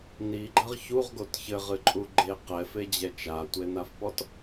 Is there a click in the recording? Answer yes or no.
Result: yes